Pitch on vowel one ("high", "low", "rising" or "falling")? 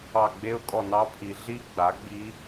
falling